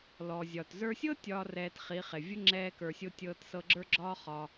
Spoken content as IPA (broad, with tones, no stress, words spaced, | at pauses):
lɔ˨zʲɒ˨t zə˞˧sʲɤ˦ tʲɒː˦rɛː˧tχi˨˦χe˨ vʲə˦ŋ͡ǁɛː˧kə˞˨sʲo˧ tʲɤː˧tsɤ˧ɡ͡ǁə˞˦ɡ͡ǁɒː˦ χɒ˧